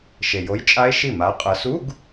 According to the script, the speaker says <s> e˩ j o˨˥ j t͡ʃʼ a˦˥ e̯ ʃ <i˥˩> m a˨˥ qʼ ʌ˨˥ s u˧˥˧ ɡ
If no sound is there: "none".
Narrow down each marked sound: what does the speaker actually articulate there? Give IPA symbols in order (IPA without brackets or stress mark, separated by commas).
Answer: ʃ, i˥˩